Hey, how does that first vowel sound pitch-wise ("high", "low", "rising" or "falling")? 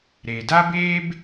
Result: low